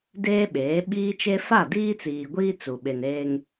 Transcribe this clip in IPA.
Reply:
d eː˦ ɓ eː˨˦ ɓ iː˦ t͡ʃ e˦ f a˦˨ d iː˦ t͡s iː˨ ɡʷ iː˦ t͡s u˨ ɓ e˨ n eː˦ ŋ

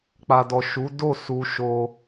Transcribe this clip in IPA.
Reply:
k͡p a˨ d ɔ˨ ʃ u˨˦ d o˦˨ s u˧ ʃ o˧

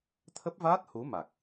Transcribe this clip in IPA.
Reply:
t̪ʰ ə˦˥ p̚ v aː˦˥ t̚ h u˨˦ m a˨˩ k̚

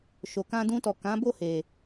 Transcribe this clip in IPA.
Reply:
ʃ o˨ k ã˧ d ũ˧ t ɔ˨ k ã˨˦ b o˦˨ h e˨

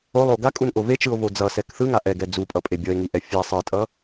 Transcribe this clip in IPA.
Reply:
o lˠ o ɡ a kʼ u n ʔ o v e t͡ʃ ɯ o̯ v o d͡z ʌ s ɛ k θ ɯ ŋ a ʔ ɛ ɡ ɛ d͡z u pʼ ʌ pʼ e bʲ ʌ e̯ ŋ i ʔ ɛ fʲ ɛ sˤ ɯ tʼ ʌ

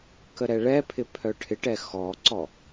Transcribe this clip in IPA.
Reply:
k ə ɾ ɛ ɭ ɛ pʰ ɪ pʰ œ ʈʰ ɪ ʈ ɛ x ɔ ǀ ɔ

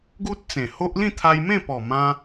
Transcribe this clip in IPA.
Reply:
ɡ u˦ t̚ t͡s ẽ˨˩ h o˦ ʔ l ĩ˥˧ t̪ʰ a˧ j m ẽ˥˧ p ɔ˨˩ m ã˧

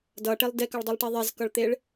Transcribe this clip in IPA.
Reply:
d ʌ ʈ e lˠ d e k ʌ ɭ dˤ u lˠ ʈ i ðˤ e z k ʌ ɭ t̪ e ɭ

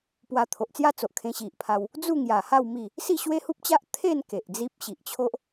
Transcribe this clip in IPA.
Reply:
p w a˧ t̪ʰ o˨ ʔ t͡s j a˥˧ t͡s o˨ ʔ kʰ ẽ˧ ɕ i˨ ʔ pʰ a˧ w | d͡z u˥˧ ŋ j a˨˩ h a˥˧ w m i˥˧ | s i˥˧ ɕ w e˦ h u˦ p̚ t͡ɕ a˦ ʔ t̪ʰ e˥˧ n k e˨ ʔ d͡z i˦ p̚ ɕ i˨ ʔ t͡ɕʰ o˦ ʔ

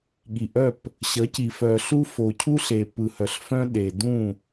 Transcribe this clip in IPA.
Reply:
ɠ i˨ ʔ œ˦˨ p | ɕ ʌ˨˦ c i˨ f œ˨ ɬ u˦ f o˨ cʰ u˦ ɬ e˨ p ɯ˨ h œ˨ ɬ f œ̃˦ ɗ e˨ d ũ˦˨

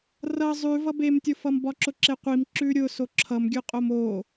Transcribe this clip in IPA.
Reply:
r ʌ zˤ ʉ v ʌ b e m tʲ ʊ f ʌ m b ɒ ǁ ʊ ǁ e qʷ i m ǁ ʉ ɾʲ ʊ s o ǁʰ ʌ m ɡʲ ʉ qʼ o m o

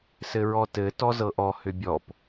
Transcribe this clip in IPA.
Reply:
s ɘ ɹ ɔ t ɘ t ɔ z ɤ ʔ ɔ h ʏ bʲ ɔ p

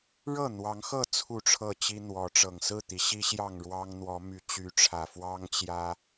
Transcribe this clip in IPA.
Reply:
ɻ ɤ˥˨ n̪ w ɑ˨˦ ŋ x ɤ˥˨ t͡sʰ u˥˨ ʈ͡ʂʰ ɤ˥˨ t͡ɕ i˦ n̪ w ɔ˨˦ ʈ͡ʂ ɤ˨˩ ŋ s ɹ̩˥˨ t̪ i˨˦ ɕ i˦ ɕ j ɑ˥˨ ŋ ɻ w ɑ˦ ŋ n̪ w ɔ˨˦ m y˨˦ t͡ɕ y˨˦ ʈ͡ʂʰ ä˨˩ f w ɑ˦ ŋ t͡ɕ j ä˦

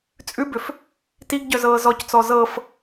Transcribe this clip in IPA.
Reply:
t͡sʼ ʉ b ʏ f | t i ɡ ɟ œ z ɤː z ɔ c t͡s ɔ z ɤ f

